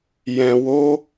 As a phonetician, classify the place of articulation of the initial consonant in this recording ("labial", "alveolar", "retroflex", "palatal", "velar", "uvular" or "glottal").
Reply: palatal